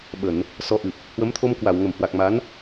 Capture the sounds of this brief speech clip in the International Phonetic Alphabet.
ɓ ə˧˩˨ n | s ɔ˨˦ ʔ ɨ˨˩ p̚ | h w ə˨˦ m t̪ʰ o˧ m k w a˧˩ w ŋ ə˧˩ m h w a˨˩ k̚ m a˨˦ n

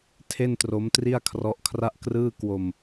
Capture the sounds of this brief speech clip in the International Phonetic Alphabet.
tʰ e˥˩ n t r o˦˥ m t r i˥˩ a̯ kʰ r ɔ˦˥ ʔ kʰ r a˥˩ ʔ k r ɯː˥˩ k w o˧ m

